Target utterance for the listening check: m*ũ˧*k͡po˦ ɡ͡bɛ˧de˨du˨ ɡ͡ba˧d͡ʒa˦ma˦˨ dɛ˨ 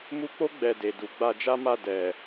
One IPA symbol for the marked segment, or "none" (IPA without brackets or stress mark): u˧